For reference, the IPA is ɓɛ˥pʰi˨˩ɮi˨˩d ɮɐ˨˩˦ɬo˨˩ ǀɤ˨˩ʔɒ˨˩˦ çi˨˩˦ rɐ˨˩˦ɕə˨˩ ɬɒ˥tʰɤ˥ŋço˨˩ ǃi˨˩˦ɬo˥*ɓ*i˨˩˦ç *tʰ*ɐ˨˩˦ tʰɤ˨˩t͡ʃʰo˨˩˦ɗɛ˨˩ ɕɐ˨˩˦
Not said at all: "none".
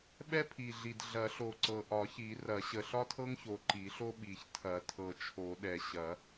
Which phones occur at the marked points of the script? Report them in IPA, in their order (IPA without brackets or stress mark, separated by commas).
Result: ɓ, tʰ